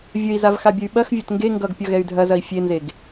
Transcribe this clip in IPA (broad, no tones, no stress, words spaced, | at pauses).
vʲəi̯zav xabʲəy̯ɓɐxvʲɐt ŋɡe ŋɡʌɡ pʲʌɣɛy̯dʱɐzɐi̯ fʲenzeɡ